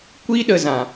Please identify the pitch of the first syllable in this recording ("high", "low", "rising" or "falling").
high